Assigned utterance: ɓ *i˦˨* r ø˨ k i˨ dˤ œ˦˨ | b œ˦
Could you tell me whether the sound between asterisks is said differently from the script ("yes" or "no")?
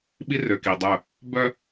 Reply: yes